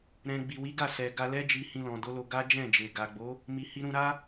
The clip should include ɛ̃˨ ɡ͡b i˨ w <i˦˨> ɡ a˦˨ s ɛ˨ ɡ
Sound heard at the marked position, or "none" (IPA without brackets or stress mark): i˨˦